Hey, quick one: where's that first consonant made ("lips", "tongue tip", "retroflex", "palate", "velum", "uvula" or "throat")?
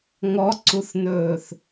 velum